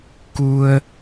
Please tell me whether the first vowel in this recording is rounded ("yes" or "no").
yes